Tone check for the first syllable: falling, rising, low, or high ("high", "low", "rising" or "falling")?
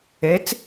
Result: rising